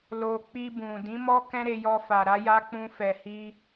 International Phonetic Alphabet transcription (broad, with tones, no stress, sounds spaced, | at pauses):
l o˧ k͡p i˧ b ũ˨ d ĩ˨˦ m ɔ˦ k ɛ̃˦ ɾ e˧ j ɔ˧ f a˨ ɾ a˧ j a˧ k͡p ũ˧ f ɛ˨ h i˧